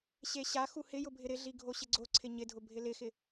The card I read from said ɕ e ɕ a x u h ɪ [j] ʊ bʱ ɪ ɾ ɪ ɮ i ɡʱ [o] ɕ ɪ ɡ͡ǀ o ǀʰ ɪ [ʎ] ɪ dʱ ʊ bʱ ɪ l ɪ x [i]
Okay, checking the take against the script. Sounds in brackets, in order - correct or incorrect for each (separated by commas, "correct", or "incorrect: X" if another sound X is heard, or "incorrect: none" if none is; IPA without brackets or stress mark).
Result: correct, correct, incorrect: ɲ, incorrect: ɪ